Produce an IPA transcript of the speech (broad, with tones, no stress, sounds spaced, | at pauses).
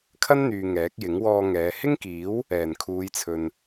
kʰ ɐ˥ n n̪ yː˨ ŋ ɛː˨˥ k̚ j ɪ˨˥ ŋ w ɔː˧ ŋ ɛː˨˧ h ɪ˥ ŋ k iː˨˥ w | ɛː˨˩ n kʰ uː˨˧ j t͡sʰ ɵ˨ n